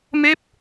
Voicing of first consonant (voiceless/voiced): voiced